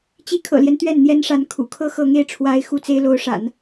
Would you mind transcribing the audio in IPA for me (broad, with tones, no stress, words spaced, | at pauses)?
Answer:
t͡ɕi˧˥kʰɤ̰˨˩ljɛ˦n t̪ɥɛ˥˩nn̪jɛ˥nʂa˧˥n kʰṵ˨˩kʰɤ˥ xɤ˧˥ŋe˥˩ɪ̯ʈ͡ʂʰwa˧˥ɪ̯ xu˥˩t͡se˥ɪ̯lo˧˥ʊ̯ʂa̰˨˩˦n